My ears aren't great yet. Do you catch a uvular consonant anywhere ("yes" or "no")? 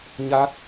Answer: no